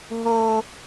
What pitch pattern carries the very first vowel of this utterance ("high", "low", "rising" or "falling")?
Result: low